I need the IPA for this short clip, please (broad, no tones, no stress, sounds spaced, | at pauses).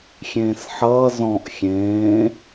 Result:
xʲ ẽː s ħ ʌː z ɔ̃ ʔ xʲ ẽː